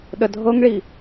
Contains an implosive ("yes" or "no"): yes